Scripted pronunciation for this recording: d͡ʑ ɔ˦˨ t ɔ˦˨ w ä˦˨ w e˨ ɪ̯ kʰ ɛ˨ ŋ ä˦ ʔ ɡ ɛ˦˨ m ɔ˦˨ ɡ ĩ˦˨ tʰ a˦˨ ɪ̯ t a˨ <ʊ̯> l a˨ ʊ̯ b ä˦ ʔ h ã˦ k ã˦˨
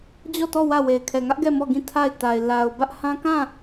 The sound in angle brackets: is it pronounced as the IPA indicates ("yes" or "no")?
no